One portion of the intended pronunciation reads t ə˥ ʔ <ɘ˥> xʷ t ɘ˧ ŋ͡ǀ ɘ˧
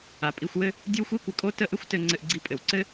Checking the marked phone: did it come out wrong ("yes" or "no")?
no